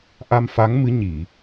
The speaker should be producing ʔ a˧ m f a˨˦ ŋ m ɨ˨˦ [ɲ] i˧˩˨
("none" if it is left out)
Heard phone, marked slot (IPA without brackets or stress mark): ɲ